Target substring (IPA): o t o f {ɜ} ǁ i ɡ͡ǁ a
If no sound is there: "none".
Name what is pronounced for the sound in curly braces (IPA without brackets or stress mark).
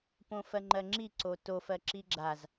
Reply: ɜ